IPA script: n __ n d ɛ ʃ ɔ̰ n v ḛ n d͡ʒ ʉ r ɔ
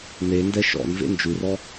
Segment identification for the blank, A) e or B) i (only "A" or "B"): A